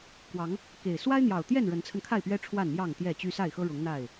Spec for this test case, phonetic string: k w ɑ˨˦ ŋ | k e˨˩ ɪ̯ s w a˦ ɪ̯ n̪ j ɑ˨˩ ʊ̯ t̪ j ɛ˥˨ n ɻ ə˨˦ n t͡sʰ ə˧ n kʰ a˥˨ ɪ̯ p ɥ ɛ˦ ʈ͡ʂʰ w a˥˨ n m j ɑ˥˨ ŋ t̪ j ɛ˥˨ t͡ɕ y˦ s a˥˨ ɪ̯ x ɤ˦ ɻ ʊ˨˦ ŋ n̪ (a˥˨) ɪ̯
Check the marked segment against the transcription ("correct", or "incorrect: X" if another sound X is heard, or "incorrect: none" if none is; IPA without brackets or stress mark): correct